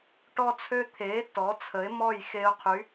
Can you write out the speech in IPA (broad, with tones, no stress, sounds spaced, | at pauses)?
ʈ ɔ˦ t͡sʰ ø˦ t̪ʰ eː˨˥ t ɔ˨˥ t͡sʰ ə˨˥ ɪ̯ m ɔ˥˨ j x e˦ ʊ̯ qʰ y˨˥